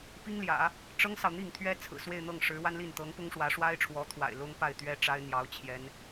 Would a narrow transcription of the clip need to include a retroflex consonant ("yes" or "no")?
yes